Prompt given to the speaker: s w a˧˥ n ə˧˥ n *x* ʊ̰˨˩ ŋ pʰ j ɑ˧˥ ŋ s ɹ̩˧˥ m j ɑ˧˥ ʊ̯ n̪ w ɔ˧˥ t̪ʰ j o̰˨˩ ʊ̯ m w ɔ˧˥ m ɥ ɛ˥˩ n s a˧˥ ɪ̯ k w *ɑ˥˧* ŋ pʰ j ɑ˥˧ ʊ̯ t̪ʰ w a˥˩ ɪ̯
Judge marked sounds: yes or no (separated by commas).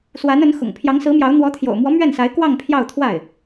yes, yes